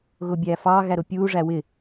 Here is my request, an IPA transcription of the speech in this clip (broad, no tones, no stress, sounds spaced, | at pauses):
ɣ ʊː bʲ æː f ɑː ɣ æ ɾ ʊ pʲ uː ʐ æ w ɪ